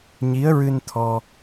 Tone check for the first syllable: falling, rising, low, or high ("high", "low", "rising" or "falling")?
rising